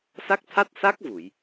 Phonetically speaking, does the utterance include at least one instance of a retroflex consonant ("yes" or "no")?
no